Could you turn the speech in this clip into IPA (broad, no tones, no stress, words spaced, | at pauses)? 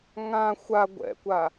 ŋã xʷa ɡʷɛ̰kʷa